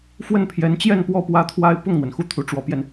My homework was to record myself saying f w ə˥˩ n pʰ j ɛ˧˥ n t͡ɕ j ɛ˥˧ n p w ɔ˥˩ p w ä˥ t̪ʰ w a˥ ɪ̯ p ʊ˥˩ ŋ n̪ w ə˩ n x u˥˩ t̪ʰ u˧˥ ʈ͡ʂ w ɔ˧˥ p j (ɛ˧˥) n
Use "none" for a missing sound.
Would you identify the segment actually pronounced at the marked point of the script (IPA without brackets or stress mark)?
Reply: ɛ˧